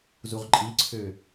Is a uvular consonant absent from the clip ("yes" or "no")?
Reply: no